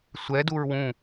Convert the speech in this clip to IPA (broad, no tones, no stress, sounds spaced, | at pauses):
sʷ ɛ d u ɹ w ũ